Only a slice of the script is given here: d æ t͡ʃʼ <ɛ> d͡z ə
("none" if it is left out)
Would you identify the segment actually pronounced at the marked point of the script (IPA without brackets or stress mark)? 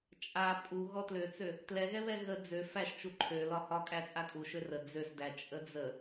ə